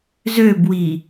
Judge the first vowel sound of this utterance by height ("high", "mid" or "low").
mid